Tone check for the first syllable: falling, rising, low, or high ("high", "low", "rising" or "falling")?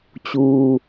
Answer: low